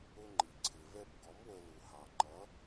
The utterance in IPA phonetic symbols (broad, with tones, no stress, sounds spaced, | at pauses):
ʊ˧ ŋ͡ǃ i˩ ǀʰ ɪ˩ v ɛ˧ p ɡ ɔ˩˥ m w ə˧ l u˩ h ɑ˩ ŋ͡ǃ ʌ˩˥